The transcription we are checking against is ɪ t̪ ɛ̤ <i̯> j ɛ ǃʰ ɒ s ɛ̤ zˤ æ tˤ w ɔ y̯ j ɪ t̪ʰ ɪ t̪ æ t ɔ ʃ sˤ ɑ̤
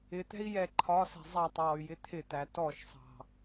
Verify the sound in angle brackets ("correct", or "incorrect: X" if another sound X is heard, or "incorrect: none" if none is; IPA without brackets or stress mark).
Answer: correct